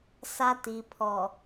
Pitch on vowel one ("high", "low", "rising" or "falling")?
high